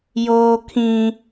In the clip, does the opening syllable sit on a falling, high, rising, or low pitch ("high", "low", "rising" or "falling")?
low